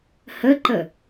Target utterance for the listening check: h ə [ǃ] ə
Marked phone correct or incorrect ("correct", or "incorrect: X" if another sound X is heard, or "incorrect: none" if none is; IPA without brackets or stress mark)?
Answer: correct